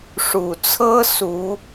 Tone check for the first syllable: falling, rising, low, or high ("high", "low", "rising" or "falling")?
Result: low